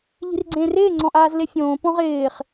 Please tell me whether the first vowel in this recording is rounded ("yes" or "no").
no